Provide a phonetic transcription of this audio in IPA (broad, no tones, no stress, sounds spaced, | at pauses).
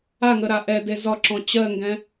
a ŋ ə ɾ a ʔ ɛ d e z ɒ ǁ ɔ̃ t͡ɕ ɜ ŋ ɡ ɛ̃